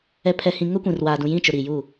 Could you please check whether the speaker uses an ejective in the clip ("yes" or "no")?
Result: no